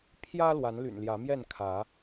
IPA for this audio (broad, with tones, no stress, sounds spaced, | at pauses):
pʰ j ä˦ l w a˨˦ n l y̰˨˩ n l j ä˨˦ m j ɛ˥˨ n kʰ ä˨˦